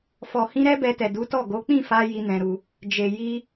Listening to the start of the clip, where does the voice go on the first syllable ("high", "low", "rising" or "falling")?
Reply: low